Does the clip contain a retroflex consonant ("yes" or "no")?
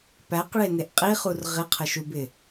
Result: yes